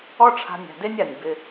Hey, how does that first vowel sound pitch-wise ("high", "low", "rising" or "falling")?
high